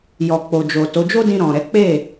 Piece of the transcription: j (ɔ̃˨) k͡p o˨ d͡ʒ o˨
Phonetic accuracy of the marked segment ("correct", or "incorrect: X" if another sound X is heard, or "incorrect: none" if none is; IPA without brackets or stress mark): incorrect: ɔ˨